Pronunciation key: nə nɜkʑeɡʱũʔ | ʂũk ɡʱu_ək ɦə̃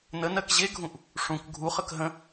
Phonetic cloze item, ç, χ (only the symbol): χ